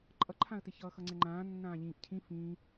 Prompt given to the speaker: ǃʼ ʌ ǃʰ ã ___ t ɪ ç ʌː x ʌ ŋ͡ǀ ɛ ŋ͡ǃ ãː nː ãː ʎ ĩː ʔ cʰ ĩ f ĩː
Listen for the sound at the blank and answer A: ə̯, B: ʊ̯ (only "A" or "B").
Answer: A